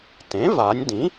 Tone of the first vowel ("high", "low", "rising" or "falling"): rising